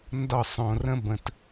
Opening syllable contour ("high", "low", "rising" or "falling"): falling